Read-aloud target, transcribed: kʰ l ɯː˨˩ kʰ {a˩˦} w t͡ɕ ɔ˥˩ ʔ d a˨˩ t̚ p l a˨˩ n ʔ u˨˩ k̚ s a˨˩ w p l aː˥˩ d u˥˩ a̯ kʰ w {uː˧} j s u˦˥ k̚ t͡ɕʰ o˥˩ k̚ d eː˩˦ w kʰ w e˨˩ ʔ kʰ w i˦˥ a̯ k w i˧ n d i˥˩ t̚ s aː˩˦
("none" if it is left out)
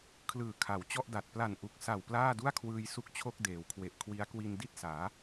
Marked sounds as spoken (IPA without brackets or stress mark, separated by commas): a˩˦, ɯː˧